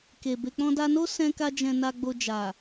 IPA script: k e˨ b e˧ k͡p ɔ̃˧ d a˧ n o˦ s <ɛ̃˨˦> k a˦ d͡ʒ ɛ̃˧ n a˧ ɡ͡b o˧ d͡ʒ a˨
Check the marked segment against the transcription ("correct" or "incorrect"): incorrect